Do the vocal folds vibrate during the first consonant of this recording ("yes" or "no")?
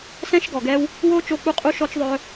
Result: no